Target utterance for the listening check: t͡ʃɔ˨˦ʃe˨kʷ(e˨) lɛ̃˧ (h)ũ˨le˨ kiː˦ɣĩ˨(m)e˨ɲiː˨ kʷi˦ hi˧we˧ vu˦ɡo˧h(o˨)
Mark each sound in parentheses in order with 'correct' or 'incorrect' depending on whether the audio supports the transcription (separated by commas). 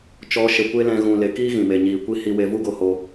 incorrect, incorrect, correct, incorrect